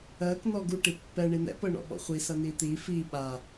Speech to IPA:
ɜ k n ɔ ɡ u ʈ i pː ɛ ɳ i n̪ ɛ̰ p ɤ ɳ ɔ̰ ɓ ɔ̰ χʷ i s ɐ n i t̪ i f i ɓ a

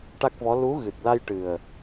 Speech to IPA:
ʈ a˦˥ k̚ v ɔ˧˥ l u˧˥ ɣ ɨ˨˩ t̚ l a˧ j ʈ ɨ˨˩ ə̯

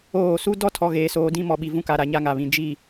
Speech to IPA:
oː˦˨ s u˦ d ɔ˦ tʰ ɔ˨ ɣ eː˨ s oː˨ d ĩ˦ m ɔ˨ ɓ i˨ v ũ˦ k a˨ ɾ a˨ ɲ a˦ ŋ a˨ β ĩ˨ d͡ʒ i˦˨

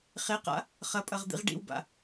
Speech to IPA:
χ e q a̰ | χ ɐ pʼ ɐ ʁ d̪ ḭ ʁ ɖ ḭ w b a̰

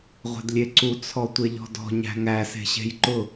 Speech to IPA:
ʁʷ e̤ d lʲ e ǀ u t͡sʰ ɔ tʷ e ʎ ɔ̤ d ɔ̤ ɲ æ̤ ŋ æ s e̤ ɕ e̤ j ǃ ʊ

